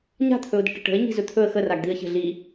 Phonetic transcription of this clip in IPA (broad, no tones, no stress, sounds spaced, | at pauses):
ɲ a̤ t̪ʰ ɵ ʊ̯ d ə̤ ʈ ə ʈ ə̤ ɪ̯ ɲ i̤ z ɵ t̪ʰ ɵ ə̯ x ə r a ɡ d̪ i ə̯ ç ə̤ ɮ i